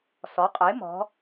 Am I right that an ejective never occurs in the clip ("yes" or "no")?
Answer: no